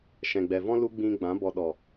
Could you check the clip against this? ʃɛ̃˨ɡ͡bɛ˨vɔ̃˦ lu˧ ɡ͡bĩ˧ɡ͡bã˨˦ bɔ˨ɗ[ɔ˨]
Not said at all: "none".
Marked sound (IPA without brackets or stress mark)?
ɔ˨